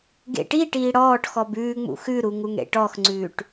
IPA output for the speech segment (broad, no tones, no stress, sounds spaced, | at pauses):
ɡ ḛ ʈ i ʈ iː ɽ ɔː ʈ x ɔ b ʉː ŋ͡m ṵ x ʉ ɾ u ŋ u ŋ ɽ ḛ ʈ ɔ x ŋ͡ǀ ʉː ʈ